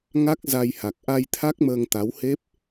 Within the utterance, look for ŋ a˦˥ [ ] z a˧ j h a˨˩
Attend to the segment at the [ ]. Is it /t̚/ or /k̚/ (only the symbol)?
k̚